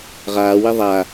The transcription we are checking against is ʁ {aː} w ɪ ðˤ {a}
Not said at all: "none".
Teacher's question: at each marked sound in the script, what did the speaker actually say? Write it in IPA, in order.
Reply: aː, a

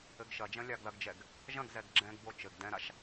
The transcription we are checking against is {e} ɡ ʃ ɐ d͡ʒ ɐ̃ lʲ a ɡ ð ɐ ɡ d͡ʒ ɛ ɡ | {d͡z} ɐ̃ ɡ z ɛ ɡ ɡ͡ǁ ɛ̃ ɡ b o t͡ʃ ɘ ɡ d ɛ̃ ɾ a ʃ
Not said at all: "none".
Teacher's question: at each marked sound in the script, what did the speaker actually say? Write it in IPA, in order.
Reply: ɘ, ʒ

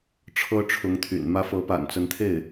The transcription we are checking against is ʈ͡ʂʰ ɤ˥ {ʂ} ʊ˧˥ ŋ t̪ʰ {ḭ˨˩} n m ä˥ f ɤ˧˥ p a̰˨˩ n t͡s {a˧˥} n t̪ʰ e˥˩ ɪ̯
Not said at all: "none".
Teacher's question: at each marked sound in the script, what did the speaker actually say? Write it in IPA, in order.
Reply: ʈ͡ʂʰ, y̰˨˩, ə˧˥

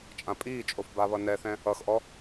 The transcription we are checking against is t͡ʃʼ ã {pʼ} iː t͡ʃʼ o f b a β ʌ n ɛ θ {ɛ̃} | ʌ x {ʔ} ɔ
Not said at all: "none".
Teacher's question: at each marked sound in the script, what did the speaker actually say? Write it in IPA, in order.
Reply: pʼ, ɛ̃, ʔ

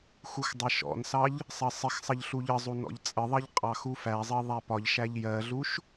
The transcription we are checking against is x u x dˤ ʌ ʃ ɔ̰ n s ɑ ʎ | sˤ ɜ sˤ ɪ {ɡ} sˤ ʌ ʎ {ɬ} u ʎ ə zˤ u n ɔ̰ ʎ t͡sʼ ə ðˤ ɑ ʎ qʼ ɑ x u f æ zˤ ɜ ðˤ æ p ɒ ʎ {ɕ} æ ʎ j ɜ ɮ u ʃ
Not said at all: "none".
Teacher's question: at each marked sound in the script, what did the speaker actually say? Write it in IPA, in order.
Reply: x, ɬ, ʃ

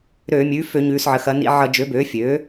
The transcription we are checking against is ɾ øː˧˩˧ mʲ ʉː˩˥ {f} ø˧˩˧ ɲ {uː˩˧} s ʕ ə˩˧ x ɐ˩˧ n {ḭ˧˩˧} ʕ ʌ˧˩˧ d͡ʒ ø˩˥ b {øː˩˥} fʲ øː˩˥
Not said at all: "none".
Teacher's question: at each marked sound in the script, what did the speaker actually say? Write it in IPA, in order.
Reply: f, ʉː˩˧, ḭ˧˩˧, øː˩˥

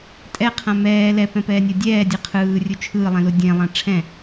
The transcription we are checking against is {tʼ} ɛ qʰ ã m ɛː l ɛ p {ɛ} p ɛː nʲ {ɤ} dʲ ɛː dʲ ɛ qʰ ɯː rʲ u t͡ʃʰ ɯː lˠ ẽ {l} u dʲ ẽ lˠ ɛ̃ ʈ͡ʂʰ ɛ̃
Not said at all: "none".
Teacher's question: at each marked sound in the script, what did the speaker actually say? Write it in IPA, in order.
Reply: tʼ, ɛ̃, ɤ, l

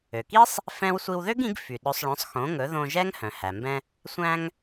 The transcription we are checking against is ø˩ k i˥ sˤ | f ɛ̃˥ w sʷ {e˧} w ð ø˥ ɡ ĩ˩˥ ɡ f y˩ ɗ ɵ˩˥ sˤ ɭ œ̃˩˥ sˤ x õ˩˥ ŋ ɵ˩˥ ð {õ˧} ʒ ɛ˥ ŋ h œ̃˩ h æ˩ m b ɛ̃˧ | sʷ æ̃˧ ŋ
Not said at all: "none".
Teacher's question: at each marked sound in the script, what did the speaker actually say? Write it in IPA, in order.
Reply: i˧, õ˧

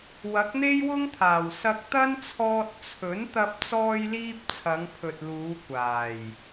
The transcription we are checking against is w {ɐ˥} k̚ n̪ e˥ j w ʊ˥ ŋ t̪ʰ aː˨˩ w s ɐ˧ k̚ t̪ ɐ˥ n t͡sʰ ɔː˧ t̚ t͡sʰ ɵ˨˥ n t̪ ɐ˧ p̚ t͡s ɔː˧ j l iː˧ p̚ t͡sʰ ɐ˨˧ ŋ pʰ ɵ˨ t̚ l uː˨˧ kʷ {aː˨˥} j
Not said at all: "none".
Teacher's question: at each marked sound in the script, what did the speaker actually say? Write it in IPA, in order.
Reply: ɐ˨˥, aː˨˩

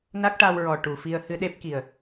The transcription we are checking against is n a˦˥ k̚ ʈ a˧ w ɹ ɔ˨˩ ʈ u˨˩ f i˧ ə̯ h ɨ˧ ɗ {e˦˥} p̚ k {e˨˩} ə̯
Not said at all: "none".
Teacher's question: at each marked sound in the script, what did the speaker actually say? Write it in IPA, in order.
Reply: e˦˥, i˨˩

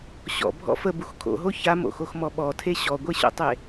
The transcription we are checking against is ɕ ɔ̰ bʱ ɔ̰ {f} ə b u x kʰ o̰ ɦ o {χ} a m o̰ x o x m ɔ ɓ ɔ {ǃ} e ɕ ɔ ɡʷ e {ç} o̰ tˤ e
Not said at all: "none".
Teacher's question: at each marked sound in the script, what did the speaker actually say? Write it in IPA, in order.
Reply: f, ç, tʰ, ɕ

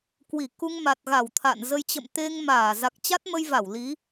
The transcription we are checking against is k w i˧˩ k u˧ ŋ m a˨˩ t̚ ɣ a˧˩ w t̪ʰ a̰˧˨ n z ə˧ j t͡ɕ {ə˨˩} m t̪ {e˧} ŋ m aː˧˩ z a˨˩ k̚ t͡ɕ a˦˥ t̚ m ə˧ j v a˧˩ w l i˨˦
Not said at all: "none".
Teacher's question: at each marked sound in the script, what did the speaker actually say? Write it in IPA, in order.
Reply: ə̰˧˨, e˧

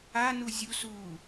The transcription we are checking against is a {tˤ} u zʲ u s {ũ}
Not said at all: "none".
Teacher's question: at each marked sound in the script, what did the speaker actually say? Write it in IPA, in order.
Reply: n, u

